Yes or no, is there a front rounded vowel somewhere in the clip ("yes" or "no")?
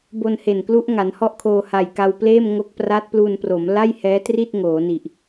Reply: no